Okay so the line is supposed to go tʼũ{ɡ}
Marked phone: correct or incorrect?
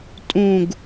correct